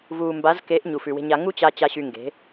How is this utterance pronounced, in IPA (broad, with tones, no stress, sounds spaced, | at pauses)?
v uː˨ m b a˨˦ z k e˨˦ ʔ ɲ u˨ f ʉ˨ w e̤˧ ɲ a˧ ŋ u˦ t͡ɕ a˧ t͡ɕ a˧ ɕ y˧ ŋ ɡ e̤˨˦